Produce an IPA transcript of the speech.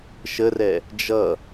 ʃərɛ | d͡ʒʌ

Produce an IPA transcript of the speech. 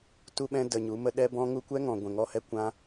tu˦ɓɛ̃˦ də˧ɲu˨˦mə˦ ɗɛ˦bɔ̃˦ŋu˦ kʷɛ˦ŋɔ̃˨ ɡʷɛ̃˨ŋɔ˧hɛ˧ kʷã˦

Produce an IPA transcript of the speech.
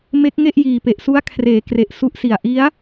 me˦˥k̚ ŋe˥˩ʔjiː˨˩pe˨˩ʔ su˦˥a̯kʰreː˩˦kre˨˩ʔ su˦˥ʔsi˨˩a̯ ʔi˦˥a̯

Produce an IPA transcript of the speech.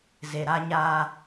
ze˨ɾa˦ ɲaː˦

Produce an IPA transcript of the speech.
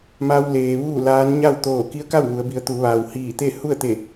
ma˧w leː˩ ʋuː˥˨laː˧˥n ɲa˥˨wt̪oː˧˩ ki˧˥ə̯ka˥˨w ʋu˩˧ə̯bi˩˧ə̯ t̪u˩˧ʋaː˩w hiː˧˩t̪e˥˨ hu˥˨ə̯t̪e˧˩

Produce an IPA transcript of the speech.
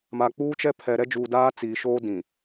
ma˨k͡puː˦t͡ʃɛ˦pʰɛ˨ ɾɛ˦d͡ʒuː˨ daː˦ t͡siː˨ʃoː˦dĩ˨

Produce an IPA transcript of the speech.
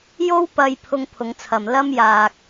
jo˥w pɐ˧j pʰʊ˧ŋpʰʊ˨˧ŋt͡sʰɐ˨m lɐ˥mjaː˧k̚

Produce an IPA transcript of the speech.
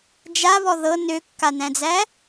d͡ʒaβɔ ðɤ nøkːanæ̃d͡zæ

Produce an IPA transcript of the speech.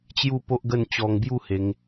t͡ɕju˥˧po˦ʔɡə˥˧n t͡ɕɔ˧ŋbju˥˧he˧ŋ

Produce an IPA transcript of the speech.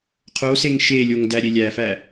qʰoseŋ ʃelʲoŋ dæɾʲelʲæfæ

